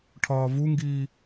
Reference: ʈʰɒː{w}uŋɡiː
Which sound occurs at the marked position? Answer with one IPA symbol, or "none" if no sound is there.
v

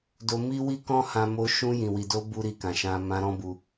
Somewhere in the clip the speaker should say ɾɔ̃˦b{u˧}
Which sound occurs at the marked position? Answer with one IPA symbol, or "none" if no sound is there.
u˧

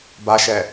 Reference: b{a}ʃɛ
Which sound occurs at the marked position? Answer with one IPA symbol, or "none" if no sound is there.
a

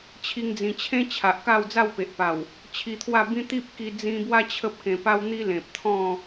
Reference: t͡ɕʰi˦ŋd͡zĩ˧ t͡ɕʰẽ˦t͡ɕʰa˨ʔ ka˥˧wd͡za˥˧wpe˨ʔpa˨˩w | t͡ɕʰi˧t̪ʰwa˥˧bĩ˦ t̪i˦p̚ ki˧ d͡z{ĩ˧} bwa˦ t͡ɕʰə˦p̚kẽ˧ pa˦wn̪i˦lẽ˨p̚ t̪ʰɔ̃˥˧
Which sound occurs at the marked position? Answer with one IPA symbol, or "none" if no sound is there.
ĩ˧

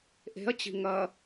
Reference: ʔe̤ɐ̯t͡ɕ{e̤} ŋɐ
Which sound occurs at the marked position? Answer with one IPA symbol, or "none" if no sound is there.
i̤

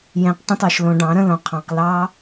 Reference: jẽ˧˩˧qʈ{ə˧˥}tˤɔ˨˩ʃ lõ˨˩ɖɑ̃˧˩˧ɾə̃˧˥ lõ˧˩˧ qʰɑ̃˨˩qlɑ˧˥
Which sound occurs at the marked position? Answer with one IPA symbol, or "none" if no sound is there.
ə̃˧˥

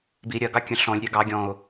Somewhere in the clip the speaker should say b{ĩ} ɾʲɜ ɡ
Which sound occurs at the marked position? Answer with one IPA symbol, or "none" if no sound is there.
i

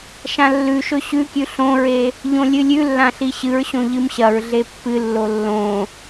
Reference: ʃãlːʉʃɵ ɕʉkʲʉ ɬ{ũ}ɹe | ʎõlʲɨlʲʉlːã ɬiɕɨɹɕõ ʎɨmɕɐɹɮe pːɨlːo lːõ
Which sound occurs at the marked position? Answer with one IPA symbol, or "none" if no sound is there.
õ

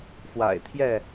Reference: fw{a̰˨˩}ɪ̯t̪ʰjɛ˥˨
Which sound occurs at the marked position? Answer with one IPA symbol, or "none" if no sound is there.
a̰˨˩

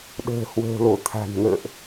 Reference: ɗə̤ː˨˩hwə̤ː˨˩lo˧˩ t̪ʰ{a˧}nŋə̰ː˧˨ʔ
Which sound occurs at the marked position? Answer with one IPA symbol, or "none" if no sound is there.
a̤˨˩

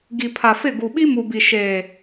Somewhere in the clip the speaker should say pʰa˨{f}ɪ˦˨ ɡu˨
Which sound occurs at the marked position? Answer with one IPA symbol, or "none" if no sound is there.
f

